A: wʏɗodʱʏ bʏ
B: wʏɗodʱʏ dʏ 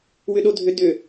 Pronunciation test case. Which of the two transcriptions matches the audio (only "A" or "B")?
B